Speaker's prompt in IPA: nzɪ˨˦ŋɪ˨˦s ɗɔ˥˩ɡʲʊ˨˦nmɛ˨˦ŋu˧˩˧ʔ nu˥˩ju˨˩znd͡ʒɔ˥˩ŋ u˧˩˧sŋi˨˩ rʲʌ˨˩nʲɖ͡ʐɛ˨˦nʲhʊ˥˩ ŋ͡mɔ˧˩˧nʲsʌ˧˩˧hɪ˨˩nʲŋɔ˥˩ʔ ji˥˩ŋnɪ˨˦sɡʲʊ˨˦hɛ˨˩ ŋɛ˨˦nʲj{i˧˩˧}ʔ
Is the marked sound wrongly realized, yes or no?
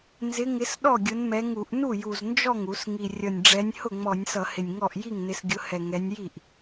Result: yes